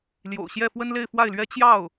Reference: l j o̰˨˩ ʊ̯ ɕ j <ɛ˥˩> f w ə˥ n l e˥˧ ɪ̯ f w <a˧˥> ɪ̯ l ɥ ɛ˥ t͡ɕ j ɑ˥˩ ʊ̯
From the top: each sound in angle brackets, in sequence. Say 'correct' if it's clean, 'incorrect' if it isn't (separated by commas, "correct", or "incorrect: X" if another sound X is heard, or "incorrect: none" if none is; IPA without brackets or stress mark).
correct, incorrect: a˥˩